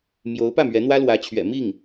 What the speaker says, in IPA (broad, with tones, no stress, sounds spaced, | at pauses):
m j o˧˥ ʊ̯ p ä˥˩ m ɥ ɛ˧˥ n̪ w ä˥ l w ä˧˥ t͡ɕʰ ɥ ɛ̰˨˩ m i˥˩ ŋ